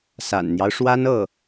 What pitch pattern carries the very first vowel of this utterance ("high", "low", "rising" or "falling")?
low